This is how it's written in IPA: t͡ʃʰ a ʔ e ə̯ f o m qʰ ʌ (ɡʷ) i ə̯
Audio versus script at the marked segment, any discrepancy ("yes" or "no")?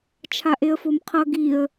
yes